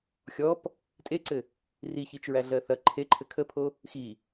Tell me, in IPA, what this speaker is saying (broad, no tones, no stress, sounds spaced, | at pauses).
xʲ ɔ p | tʼ e ǀ ɘ | r i ç i t͡ʃ ɹ æ ɮ ɜ θ ɐ ǃʰ e ǃʰ ɘ kʰ ə pʰ o | x i